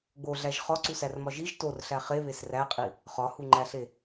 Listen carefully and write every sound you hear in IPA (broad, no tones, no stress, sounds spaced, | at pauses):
ɡ͡b o ɮ æ ʒ χ ɒ ǀ u s æ r m ɒ ʒ i ʒ t o r ɬ æ χ e β e s r æ qʼ i | χ ɒ h u ŋ͡ǃ æ ɬ e